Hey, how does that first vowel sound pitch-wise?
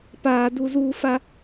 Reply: high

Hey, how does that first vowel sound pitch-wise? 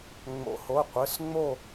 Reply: rising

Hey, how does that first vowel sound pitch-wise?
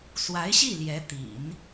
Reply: rising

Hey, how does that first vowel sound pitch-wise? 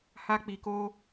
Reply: high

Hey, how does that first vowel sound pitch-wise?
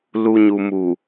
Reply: low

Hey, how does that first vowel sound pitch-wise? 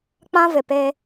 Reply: high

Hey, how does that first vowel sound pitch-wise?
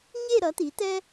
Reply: falling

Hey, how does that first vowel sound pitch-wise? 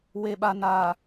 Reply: low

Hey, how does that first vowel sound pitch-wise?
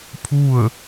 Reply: falling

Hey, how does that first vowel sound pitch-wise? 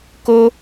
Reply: high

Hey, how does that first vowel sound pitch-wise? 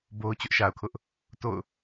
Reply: high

